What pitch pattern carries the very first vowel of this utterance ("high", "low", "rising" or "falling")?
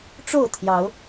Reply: falling